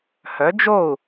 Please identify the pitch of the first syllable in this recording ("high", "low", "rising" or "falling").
rising